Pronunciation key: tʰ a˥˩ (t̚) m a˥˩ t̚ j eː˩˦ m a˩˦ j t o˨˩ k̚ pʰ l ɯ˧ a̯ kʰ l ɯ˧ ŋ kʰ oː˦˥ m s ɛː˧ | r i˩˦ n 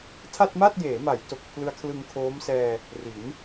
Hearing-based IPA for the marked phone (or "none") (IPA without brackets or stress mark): t̚